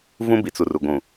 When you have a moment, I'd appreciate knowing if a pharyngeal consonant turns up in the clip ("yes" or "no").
no